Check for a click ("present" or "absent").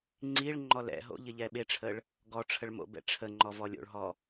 present